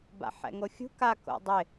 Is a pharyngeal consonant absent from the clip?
no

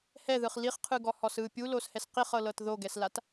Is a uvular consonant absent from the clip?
no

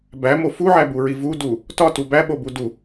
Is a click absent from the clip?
yes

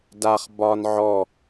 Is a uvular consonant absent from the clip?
no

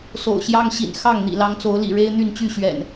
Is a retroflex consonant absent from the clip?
no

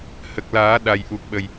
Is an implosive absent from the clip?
no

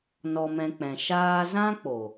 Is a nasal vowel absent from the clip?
no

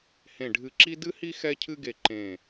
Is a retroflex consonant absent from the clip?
no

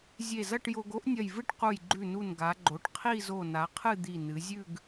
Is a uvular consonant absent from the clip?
no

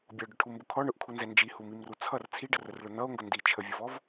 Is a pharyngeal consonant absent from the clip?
yes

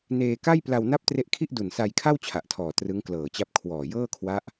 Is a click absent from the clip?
yes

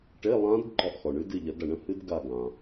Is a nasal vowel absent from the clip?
no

